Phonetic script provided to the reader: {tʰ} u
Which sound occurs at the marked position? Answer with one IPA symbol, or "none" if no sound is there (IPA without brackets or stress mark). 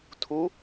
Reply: tʰ